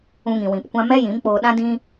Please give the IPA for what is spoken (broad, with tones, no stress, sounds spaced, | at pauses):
ũ˧ ŋ ĩ˨ w ĩ˨ p kʷ ã˦ m ɛ˦ j ĩ˨˦ m k͡p oː˧ ɗ ã˦ d ĩ˦